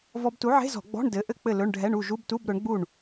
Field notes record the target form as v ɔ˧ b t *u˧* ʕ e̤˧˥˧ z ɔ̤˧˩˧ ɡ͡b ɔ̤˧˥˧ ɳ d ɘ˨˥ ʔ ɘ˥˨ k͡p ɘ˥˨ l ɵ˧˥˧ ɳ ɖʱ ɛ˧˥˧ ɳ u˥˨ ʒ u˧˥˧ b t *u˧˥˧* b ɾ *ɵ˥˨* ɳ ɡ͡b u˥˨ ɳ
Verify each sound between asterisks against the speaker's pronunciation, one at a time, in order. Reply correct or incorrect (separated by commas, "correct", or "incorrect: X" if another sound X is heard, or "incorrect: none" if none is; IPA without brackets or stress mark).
incorrect: u˨˥, correct, incorrect: ɵ˨˥